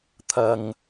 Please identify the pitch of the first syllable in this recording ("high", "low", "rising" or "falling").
low